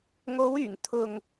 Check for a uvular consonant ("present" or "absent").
absent